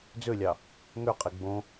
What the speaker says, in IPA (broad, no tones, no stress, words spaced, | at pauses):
d͡zølʲɑ | ŋøqʼe ɡ͡bõ